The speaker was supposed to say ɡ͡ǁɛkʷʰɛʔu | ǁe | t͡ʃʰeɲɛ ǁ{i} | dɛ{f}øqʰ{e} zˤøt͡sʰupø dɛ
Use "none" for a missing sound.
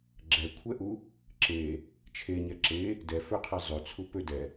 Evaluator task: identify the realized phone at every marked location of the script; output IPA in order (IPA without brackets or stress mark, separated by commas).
e, f, e